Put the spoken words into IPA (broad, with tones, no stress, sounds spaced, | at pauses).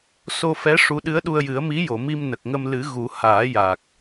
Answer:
s o˧ f ɛ˧˥ ʂ u˧˥ ɗ ɨ˧˥ ə̯ ɗ u˧ ə̯ j ɨ˨˩˦ ə̯ m i˧˥ j o˨˩˨ m i˧ m n ə˨˩ k̚ ŋ ə˧ m l ɨ˨˩˦ ɣ u˨˩˦ h aː˨˩˦ j a˨˩ k̚